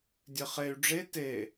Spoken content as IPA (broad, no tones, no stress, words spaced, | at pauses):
dʲɘχey̯ ɖ͡ʐe te